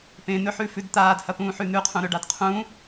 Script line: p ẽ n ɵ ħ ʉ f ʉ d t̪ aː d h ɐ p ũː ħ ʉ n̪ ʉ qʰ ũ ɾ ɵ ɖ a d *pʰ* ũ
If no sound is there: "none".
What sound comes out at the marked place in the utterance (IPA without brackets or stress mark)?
qʰ